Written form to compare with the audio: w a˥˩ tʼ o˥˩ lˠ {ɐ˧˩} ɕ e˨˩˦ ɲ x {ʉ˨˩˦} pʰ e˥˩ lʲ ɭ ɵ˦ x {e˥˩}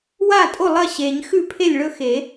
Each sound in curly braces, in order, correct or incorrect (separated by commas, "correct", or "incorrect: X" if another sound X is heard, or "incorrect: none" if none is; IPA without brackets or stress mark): incorrect: ɐ˥˩, incorrect: ʉ˥˩, incorrect: e˨˩˦